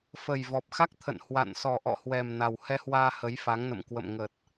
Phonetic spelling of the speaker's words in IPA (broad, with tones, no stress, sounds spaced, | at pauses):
f ə˨˩ j v ɔ˨˩ p̚ x a˦˥ k̚ t̪ʰ ə̰˧˨ n h w a̰˧˨ n s ɔ˨˩ ʔ ɔ̰˧˨ h w ɛ˨˩ m n a˨˩ w h ɛ˧ h w aː˧ h ə˨˦ j f a˨˦ ŋ n ə̰˧˨ m k w ə̰˧˨ m ŋ ə˨˩ t̚